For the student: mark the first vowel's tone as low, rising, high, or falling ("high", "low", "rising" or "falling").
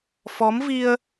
rising